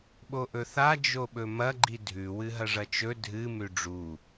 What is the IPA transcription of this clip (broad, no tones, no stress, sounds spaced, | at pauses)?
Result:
ɓ o ʔ ɵ θ a d͡ʒ o ɓ ɵ m ɐ ɡ͡ǃ i dʱ ʉ w ɨ ɦ ɐ ʐ ɐ t͡ʃ ɵ dʱ ɨ m ʉ ɖ͡ʐ u